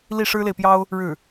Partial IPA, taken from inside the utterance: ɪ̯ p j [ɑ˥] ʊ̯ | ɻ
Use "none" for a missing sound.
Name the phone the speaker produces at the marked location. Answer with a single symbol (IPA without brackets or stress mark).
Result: ɑ˥